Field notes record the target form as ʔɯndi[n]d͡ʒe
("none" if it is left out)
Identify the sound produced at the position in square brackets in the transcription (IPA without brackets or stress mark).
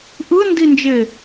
n